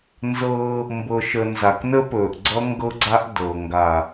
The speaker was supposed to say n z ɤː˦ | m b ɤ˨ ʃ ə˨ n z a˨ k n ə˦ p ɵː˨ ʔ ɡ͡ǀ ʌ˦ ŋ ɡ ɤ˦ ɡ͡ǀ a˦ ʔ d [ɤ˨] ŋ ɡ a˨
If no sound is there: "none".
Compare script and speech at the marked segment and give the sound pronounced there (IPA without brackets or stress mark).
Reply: ɤ˨